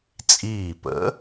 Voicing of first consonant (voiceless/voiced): voiceless